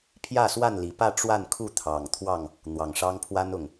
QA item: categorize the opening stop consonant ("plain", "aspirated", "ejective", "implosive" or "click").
aspirated